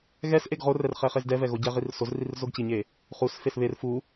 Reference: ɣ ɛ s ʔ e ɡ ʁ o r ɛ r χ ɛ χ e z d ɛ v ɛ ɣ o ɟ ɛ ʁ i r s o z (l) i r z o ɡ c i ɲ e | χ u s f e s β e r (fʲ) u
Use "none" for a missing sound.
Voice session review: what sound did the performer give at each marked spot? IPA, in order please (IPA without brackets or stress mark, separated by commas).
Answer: r, f